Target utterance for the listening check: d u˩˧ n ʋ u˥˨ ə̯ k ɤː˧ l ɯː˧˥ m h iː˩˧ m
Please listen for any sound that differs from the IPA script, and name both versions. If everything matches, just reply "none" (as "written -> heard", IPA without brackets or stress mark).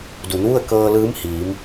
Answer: none